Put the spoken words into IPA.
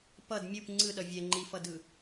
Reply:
p ʌ d mʲ u p ŋ͡ǀ ɯ ɗ ʌ vʲ ɛ ŋ͡ǃ i f ʌ d ɯ

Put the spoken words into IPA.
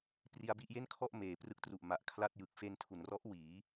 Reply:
p r i˧ a̯ b i˥˩ ʔ j e˥˩ n kʰ ɔ˥˩ ʔ m eː˩˦ p r ɯ˦˥ k̚ t r u˨˩ ʔ m a˨˩ ʔ kʰ l a˥˩ t̚ j ɯ˨˩ k̚ f e˧ n tʰ u˩˦ n r ɔ˦˥ ʔ w iː˩˦

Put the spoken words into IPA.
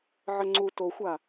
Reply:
ʕ ə ŋ͡ǀ u t o xʷ a

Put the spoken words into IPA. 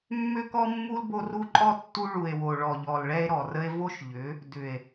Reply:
mː ʏ˦ k ɔ˦ mː u˦ l b o˦ r u˦ ǃʼ ɔ˦ tː u˦ ɭ u˨ e̯ w o˨ ɭ ɔ˨ ʎ ɔ˨ l ɭ ɛ˦ e̯ ɾ ɔ˨ r ə˦ e̯ v o˦ ʃ ʎ ʏ˨˦ | d ʏ˨ e̯

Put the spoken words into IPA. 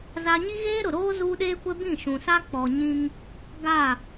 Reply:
z a˦ ɲ i˦ ɣ eː˦ ɾ ʊ˨ ɾ oː˦ z uː˦ ɗ eː˦ kʷ ɛ˦ b ĩ˦˨ ʃ ũ˨ s a˦ k͡p ɔ˨ ɲ ĩ˦ ŋ | ɡ a˦˨

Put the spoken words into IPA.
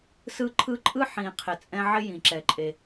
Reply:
s ɯ˦ ǃʰ ɯ˦ ǃʼ ɯ˥ ħ ĩ˨ qʰ ɪ˨ t͡sʼ ɛ̃˦ ʕ ɪ˥ j ĩ˩ ǁ ɛ˩ ǃʼ e˩

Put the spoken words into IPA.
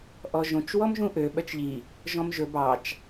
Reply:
ʔ ɔ ʒ õ t͡ʃ w ɔ m ʒ ũ ʔ ø ɓ œ t͡ʃ ʎ i | ʒ ɔ̃ m ʒ ɵ b ɑ t͡ʃ

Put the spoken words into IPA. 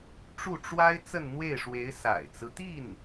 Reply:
ʈ͡ʂ u˥˩ ʈ͡ʂ w a˥ ɪ̯ t͡s ə˥˧ n n̪ w e˥˩ ɪ̯ ʂ w e˧˥ ɪ̯ s a̰˨˩ ɪ̯ t͡s ɹ̩˦ t̪ i˥˩ n

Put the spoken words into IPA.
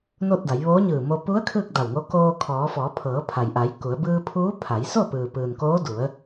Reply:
n o˥˨ t̚ d a˩˧ j ʋ oː˧˥ ɲ ɯː˧˩ m o˧ p u˧˥ ə̯ kʰ ɯː˥˨ k̚ d a˧˩ w ŋ o˧˥ k oː˧ kʰ ɔː˩˧ f ɔː˩˧ pʰ ɤː˩˧ pʰ a˩ j ʔ a˩˧ j k u˩˧ ə̯ b ɯː˧ pʰ uː˧˥ pʰ a˩˧ j s o˥˨ p ɯː˩ p ɯː˩ n k oː˧˥ d u˩˧ ə̯

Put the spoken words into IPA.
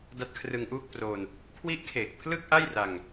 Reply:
d a˦˥ t̚ kʰ r ɯ˧ ŋ ʔ uː˥˩ k̚ p r o˧ n | kʰ w i˦˥ ʔ kʰ eː˨˩ k̚ pʰ l ɯ˥˩ k̚ ʔ a˥˩ j r a˧ ŋ

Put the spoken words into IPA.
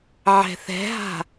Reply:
ʕ ɛ̤ θ ɛ̤ ɦ a̤

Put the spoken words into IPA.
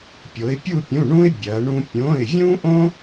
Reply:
pʲ o˩˧ ɪ̯ pʲ u˦˨ pʲ ũ˩˧˩ ɳ ũ˦ ɪ̯ bʲ ɐ˩˧ ɳ ũ˦ pʲ õ˩˧˩ ɪ̯ vʲ ũ˦ ʔ õ˦

